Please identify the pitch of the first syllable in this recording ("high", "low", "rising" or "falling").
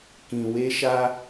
low